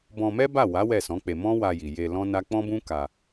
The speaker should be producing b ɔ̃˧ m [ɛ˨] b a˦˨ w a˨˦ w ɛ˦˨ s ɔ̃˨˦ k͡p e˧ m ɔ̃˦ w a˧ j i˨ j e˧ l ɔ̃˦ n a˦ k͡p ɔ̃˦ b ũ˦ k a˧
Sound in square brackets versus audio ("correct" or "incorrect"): incorrect